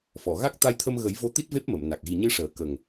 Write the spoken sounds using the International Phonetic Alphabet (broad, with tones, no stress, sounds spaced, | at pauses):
f ɔ˨˩˨ ɣ a˦˥ k̚ t̪ a˧ j t̪ʰ ə˧ m ɣ ə˨˩˦ j v o˧˥ t̪ i˦˥ t̚ v e˦˥ p̚ m ə˨˩˨ m n a˨˩ k̚ ɣ i˨˩ ɲ ɨ˧ ʂ əː˨˩˦ k ə˨˩ ŋ